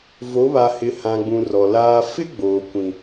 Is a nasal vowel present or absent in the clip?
present